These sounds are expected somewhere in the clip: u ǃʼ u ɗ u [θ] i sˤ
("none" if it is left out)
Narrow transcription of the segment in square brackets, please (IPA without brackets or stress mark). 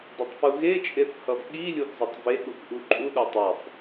tˤ